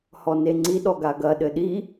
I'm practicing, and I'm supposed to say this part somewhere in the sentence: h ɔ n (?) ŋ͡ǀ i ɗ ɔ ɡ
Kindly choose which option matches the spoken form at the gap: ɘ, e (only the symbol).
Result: e